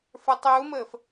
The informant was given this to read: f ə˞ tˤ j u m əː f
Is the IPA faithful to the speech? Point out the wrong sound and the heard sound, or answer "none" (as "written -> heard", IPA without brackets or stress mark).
none